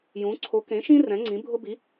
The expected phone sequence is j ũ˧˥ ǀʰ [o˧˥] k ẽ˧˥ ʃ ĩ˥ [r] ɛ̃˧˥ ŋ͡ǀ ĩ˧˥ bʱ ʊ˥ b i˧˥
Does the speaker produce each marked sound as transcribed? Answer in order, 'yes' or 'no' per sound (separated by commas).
yes, yes